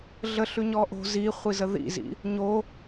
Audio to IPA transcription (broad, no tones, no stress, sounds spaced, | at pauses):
ɮ ə ɬ ʉ ɲ ɔ ʔ o̤ z i χʷ i z ə ð ḭ z ḭ | ɲ o